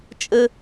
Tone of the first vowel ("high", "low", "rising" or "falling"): high